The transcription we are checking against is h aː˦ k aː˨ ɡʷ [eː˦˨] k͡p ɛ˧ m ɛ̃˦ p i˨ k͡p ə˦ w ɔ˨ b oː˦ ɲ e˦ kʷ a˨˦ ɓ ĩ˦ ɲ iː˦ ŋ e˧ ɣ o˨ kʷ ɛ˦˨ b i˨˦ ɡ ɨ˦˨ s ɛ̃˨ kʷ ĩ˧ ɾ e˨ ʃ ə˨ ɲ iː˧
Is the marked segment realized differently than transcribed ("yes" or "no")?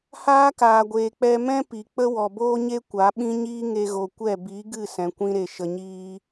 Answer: yes